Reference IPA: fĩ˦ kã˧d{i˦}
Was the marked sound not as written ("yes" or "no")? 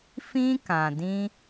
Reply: yes